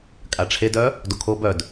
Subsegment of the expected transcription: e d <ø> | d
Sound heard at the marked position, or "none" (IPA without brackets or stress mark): œ